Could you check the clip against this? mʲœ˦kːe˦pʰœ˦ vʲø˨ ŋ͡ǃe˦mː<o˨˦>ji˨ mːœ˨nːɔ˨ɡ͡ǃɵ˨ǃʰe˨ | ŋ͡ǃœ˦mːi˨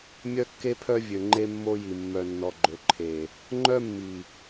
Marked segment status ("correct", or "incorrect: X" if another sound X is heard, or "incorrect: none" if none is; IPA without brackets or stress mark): incorrect: o˦